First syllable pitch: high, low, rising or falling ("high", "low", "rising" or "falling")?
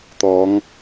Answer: rising